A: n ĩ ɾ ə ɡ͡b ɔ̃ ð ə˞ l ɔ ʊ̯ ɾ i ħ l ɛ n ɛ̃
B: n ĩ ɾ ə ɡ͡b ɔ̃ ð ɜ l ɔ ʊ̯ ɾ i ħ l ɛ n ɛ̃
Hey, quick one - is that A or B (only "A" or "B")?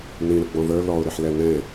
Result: A